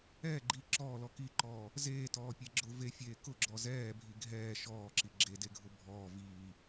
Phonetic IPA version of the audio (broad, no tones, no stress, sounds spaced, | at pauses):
ɛː ɡ͡ǃ iː ǁ ɔː l ɔ k i ǃ ɔː | z eː t ɔː pʲ e ɡ͡ǁ ʊ v e fʲ eː k ʊ ɡ͡ǁ ɔ z ɛː bʱ i ɡʱ ɛː ʃ ɔː ǁ i ɡ͡ǁ e d e ɡʱ ʊ bʱ ɔː v iː